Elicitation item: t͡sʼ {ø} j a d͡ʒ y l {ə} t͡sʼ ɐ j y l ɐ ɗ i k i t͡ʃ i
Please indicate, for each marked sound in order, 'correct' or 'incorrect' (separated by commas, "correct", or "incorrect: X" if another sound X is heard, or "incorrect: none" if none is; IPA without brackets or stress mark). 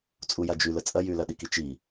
incorrect: u, correct